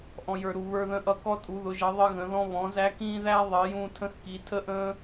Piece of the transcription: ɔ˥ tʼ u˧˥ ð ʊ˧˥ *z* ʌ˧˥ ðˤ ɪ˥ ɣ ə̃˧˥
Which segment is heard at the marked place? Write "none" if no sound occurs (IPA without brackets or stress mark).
ʒ